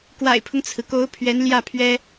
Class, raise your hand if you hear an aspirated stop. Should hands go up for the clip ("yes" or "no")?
yes